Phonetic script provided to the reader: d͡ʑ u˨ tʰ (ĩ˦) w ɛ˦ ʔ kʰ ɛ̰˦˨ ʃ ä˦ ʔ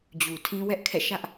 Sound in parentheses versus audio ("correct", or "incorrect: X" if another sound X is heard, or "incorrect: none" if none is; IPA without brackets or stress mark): correct